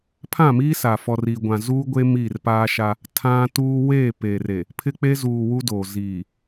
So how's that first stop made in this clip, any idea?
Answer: aspirated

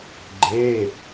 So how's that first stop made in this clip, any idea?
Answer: click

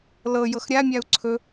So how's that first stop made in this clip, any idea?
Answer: click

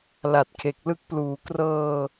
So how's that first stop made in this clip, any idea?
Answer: plain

